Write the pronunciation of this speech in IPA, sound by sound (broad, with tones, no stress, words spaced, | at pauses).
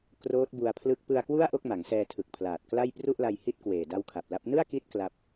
kroː˦˥t̚bu˧a̯pʰlɯ˦˥k̚ pɯ˧a̯kwu˥˩a̯ ʔo˥˩k̚ma˩˦ŋsɛː˧tʰɯ˨˩k̚ pʰlaː˨˩t̚kla˥˩j pru˥˩ʔla˧jhi˦˥t̚kweː˨˩ da˦˥wkʰa˨˩p̚la˦˥p̚ nɯ˥˩a̯ki˦˥t̚ kla˦˥p̚